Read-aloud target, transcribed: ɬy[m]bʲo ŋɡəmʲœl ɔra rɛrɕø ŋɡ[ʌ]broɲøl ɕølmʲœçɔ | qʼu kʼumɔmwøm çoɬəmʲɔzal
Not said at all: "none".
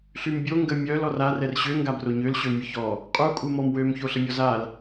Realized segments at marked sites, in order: m, a

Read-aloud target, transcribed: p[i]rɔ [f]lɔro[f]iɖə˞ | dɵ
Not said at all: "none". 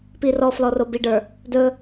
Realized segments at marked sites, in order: i, f, b

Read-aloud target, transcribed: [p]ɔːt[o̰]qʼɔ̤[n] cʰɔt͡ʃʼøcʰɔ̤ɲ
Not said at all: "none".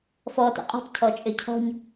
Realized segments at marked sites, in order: f, o̰, t

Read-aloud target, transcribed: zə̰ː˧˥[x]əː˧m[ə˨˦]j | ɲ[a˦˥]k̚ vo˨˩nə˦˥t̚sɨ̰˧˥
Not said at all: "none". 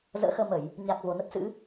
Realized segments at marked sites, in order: x, ə˧˩˨, a˨˩

